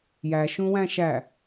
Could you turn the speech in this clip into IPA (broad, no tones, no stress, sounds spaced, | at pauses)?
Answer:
j æ ʃ ũ w æ̃ ʃ æ